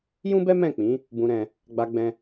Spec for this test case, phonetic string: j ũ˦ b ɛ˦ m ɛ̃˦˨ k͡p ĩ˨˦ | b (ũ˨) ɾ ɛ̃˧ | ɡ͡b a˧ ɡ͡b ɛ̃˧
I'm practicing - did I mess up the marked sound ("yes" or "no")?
yes